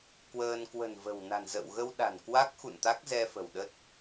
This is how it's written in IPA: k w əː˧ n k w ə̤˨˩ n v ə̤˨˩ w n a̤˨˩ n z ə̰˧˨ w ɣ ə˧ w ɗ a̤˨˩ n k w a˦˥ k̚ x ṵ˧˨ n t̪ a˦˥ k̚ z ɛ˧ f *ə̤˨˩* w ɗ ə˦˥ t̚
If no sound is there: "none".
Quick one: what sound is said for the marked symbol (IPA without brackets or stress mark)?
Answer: ə̤˨˩